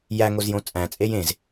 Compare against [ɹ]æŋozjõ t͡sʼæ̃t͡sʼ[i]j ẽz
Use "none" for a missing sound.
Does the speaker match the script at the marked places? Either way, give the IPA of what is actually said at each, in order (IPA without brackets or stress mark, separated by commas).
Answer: j, e